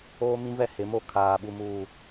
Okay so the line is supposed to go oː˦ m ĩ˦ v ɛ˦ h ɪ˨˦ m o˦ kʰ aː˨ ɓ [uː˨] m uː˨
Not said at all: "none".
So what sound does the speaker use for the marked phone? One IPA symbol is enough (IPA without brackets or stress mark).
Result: u˨